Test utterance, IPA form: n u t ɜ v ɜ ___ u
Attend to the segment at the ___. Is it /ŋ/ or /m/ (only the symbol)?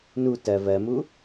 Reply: m